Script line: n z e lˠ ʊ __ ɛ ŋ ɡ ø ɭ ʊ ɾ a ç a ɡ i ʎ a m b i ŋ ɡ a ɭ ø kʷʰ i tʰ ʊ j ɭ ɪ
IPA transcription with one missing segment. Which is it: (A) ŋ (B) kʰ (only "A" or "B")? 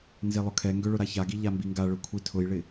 B